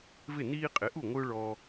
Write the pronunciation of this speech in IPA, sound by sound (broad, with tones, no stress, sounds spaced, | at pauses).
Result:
v ɪ˥˩ n iː˦ qʼ ɪ˩˥ ʔ u˥˩ ŋʷ ɯ˦ ʊ̯ ɭ ɔː˦